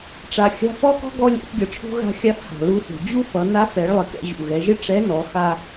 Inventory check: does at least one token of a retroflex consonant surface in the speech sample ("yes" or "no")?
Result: yes